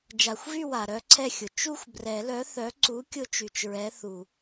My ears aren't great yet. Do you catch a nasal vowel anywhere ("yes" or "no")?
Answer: no